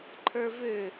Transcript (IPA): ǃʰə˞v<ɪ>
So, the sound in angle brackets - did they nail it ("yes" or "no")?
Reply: no